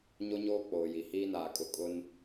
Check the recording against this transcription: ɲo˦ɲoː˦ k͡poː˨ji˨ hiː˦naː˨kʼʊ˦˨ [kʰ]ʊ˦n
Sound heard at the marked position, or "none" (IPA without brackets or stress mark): kʼ